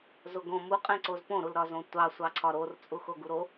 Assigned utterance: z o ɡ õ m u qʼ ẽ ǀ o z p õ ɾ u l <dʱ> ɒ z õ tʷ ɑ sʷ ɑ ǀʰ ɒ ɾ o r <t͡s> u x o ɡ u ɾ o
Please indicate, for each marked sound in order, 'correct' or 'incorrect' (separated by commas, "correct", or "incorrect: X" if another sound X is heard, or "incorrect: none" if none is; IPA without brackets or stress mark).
incorrect: ɾ, incorrect: t͡sʼ